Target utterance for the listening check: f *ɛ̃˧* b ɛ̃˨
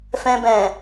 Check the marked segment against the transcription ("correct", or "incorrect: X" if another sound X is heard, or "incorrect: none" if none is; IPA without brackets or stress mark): correct